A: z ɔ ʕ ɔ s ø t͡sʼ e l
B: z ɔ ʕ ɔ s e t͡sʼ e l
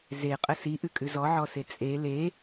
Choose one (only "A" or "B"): B